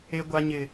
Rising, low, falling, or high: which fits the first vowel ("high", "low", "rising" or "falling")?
high